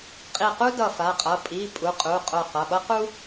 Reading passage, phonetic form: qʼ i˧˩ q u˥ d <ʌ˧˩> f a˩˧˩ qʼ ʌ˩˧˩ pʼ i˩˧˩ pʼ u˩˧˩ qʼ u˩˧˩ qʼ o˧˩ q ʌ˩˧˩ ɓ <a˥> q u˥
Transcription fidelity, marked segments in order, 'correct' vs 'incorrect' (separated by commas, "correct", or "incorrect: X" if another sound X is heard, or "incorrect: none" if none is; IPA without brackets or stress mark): correct, incorrect: ʌ˥